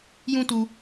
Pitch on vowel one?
high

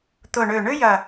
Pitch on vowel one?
low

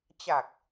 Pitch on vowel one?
low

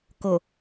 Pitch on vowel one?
low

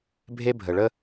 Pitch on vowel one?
high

